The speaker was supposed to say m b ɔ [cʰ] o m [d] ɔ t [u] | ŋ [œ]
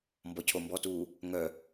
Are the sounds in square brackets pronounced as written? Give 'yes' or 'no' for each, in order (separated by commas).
yes, no, no, yes